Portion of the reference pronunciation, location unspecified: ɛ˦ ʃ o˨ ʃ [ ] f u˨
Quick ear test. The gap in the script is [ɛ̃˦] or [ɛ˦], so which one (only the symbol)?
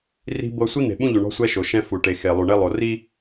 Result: ɛ̃˦